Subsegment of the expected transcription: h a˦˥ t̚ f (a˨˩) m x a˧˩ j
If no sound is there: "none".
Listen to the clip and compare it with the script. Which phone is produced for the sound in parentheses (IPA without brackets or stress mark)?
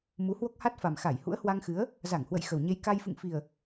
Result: a˨˩